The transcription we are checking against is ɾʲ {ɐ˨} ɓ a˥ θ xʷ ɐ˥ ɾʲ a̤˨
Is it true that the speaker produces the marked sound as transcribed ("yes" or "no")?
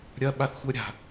no